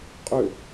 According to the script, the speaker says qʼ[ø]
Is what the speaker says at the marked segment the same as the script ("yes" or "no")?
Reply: yes